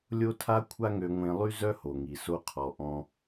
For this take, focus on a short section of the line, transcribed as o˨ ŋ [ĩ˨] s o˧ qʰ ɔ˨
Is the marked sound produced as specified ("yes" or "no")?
no